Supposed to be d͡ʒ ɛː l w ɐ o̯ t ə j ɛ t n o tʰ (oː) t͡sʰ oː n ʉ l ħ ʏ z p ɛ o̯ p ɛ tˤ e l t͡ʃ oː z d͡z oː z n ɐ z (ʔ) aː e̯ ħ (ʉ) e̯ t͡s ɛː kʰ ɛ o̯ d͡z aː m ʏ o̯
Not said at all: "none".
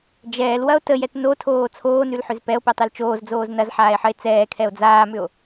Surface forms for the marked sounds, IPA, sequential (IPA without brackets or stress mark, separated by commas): oː, ħ, ə